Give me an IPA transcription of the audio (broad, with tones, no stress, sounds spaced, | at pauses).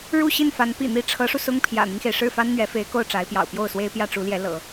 ɻ u˥˧ ɕ i˥˩ n f a˧˥ n p ḭ˨˩ n̪ i˧˥ ʈ͡ʂʰ ɤ˧˥ ʂ u˧ s ʊ˥ ŋ pʰ j ä̰˨˩ n̪ i˦ ŋ x e˩ ɪ̯ ʂ ɻ̩˥˩ f a˥ n n̪ ɥ ɛ˧˥ f e˧˥ ɪ̯ k o˥˩ ʊ̯ ʈ͡ʂ a˧˥ ɪ̯ p j ɑ̰˨˩ ʊ̯ p j o˥˩ ʊ̯ s w e˥ ɪ̯ p j ä˥˩ ʈ͡ʂ u˧˥ l j ɛ˧˥ l ɤ̰˨˩˦